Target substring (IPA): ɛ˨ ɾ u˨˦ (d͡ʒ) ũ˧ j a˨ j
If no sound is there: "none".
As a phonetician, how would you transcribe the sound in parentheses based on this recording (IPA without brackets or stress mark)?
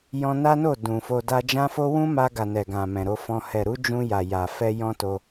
d͡ʒ